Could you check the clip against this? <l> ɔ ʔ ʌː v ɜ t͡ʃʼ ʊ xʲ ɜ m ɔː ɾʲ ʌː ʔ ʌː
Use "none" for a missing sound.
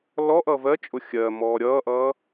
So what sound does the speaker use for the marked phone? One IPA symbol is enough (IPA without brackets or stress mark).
l